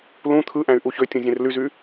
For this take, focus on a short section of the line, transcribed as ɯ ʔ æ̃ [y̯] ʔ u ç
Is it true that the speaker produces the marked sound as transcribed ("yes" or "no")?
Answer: yes